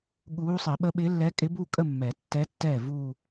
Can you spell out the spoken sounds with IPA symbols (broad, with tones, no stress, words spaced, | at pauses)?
ɠuː˧˥ sˤi˨˩˦ɓə˧˥ ɓɪ˧˥lːɛ˧˥kʼɪ˧˥bu˥˧ kʼə˥˧mːɛ˨˩˦ tːɛ˧˥ tːɛː˥˩vu˥˧